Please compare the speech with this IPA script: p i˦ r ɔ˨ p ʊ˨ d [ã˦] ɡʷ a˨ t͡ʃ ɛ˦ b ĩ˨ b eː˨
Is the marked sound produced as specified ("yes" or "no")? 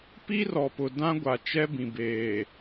yes